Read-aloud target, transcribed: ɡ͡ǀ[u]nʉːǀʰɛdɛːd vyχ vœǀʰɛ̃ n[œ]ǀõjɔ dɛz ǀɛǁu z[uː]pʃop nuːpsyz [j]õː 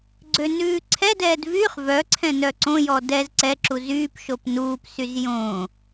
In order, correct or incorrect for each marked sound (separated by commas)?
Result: incorrect, correct, incorrect, correct